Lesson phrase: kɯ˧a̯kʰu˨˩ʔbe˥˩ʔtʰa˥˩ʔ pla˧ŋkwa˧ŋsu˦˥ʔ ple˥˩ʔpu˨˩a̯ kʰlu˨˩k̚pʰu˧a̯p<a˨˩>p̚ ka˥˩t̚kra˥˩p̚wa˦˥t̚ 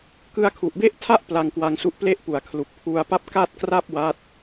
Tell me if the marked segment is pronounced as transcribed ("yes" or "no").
no